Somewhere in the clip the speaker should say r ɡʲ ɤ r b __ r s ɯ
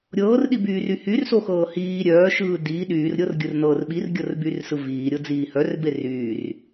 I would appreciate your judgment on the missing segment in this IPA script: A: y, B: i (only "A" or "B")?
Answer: A